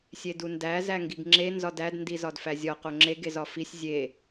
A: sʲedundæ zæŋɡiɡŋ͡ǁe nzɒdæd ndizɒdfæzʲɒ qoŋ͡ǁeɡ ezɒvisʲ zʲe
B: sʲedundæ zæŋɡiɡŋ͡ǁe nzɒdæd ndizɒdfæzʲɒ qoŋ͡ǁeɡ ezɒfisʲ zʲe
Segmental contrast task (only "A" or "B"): B